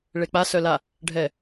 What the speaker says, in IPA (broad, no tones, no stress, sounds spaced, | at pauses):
ɭ e k͡p a s œ l a | ɖʱ ɛ